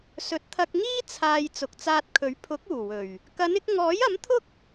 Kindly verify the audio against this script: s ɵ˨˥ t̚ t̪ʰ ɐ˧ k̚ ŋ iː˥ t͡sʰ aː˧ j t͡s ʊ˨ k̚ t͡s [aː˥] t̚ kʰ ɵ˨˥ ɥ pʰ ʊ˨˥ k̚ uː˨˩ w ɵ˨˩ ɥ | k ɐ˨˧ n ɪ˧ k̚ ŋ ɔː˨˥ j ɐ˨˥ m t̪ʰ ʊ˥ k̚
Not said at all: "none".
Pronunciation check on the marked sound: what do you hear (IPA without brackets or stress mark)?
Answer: aː˧